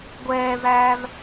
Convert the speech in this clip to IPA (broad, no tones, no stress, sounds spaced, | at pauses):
ɡʷ ɛː v æː v